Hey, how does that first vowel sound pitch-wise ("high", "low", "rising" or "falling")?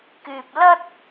low